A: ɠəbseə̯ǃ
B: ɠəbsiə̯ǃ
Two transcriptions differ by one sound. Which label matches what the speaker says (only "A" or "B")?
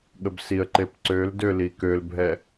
B